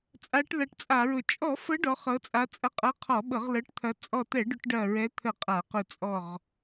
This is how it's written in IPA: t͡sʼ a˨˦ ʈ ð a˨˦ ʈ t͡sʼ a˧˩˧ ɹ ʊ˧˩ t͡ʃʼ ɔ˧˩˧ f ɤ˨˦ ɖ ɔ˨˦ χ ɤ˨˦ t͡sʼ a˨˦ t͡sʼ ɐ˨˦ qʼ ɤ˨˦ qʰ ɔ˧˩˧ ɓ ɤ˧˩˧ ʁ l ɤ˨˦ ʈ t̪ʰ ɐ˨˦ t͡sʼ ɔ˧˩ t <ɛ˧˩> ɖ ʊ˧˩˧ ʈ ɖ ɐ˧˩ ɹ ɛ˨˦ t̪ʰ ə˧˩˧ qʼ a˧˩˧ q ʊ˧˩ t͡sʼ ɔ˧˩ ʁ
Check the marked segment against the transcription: incorrect: ɛ˧˩˧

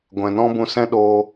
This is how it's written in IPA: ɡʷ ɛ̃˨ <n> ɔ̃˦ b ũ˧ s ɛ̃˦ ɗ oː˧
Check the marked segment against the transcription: correct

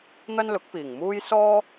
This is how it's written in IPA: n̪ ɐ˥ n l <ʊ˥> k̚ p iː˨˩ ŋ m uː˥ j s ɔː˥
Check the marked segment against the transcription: incorrect: ʊ˨˥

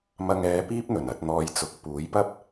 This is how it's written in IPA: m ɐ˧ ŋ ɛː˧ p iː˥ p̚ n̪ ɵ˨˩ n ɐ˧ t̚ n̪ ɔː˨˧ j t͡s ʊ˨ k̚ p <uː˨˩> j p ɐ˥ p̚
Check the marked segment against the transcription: incorrect: uː˨˥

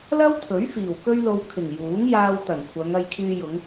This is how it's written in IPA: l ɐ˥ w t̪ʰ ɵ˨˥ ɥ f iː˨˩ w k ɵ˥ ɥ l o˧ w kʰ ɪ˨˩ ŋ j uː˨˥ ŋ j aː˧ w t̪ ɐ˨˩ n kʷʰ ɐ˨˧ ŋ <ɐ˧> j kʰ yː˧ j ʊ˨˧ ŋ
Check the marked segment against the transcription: correct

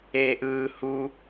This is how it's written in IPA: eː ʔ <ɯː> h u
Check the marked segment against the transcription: correct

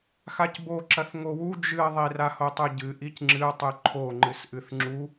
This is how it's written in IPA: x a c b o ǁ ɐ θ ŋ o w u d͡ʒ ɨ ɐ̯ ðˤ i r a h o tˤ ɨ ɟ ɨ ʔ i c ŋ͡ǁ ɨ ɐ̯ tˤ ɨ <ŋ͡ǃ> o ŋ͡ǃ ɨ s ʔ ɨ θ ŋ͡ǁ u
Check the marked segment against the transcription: incorrect: ǃʰ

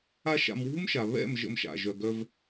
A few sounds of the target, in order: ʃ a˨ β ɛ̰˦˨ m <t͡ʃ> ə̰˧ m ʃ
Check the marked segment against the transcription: incorrect: ʒ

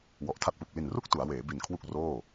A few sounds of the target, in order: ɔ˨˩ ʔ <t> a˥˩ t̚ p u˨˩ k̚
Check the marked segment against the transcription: incorrect: tʰ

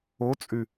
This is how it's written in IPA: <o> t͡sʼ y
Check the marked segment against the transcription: correct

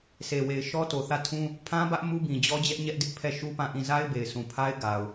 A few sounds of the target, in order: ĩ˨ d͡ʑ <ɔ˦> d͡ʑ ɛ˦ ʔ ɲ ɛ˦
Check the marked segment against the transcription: correct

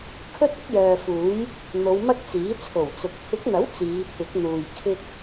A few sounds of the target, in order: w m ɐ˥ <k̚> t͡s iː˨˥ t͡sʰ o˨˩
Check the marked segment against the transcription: correct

